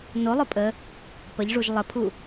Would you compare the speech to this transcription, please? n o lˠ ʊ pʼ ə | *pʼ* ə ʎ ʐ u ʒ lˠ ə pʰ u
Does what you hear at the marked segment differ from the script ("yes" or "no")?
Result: yes